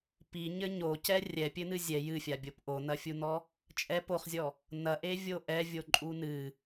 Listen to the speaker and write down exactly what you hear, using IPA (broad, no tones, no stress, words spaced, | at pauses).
piɲɘ ɲocɛ rʲɛpʲɘnɨ zʲɛ jɨfʲabʲop ʔonɐfʲunɔ | t͡ʃʼɛp oχzʲɔ | nɐʔevʲo ʔɛvʲoǃʼu nɨ